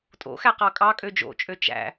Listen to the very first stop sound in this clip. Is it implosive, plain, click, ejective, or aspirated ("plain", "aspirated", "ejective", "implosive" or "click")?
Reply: ejective